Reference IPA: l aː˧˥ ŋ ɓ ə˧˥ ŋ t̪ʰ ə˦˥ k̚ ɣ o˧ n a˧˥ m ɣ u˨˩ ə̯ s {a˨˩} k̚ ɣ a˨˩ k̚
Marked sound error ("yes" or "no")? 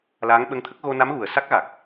yes